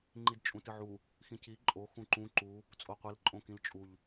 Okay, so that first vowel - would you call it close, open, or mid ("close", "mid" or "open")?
close